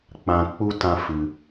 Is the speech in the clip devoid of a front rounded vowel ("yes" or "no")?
yes